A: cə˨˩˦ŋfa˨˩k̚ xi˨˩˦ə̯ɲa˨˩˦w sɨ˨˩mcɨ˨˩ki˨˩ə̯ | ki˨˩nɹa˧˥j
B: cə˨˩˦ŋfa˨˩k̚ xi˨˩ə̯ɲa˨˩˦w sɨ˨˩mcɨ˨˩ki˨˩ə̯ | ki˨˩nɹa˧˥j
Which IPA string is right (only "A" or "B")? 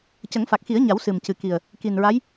A